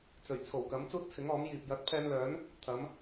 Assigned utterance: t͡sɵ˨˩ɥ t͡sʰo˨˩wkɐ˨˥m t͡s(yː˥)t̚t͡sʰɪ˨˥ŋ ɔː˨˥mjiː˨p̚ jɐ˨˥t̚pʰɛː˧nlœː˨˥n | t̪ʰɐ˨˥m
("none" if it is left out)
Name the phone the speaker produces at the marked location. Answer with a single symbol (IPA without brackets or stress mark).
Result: uː˥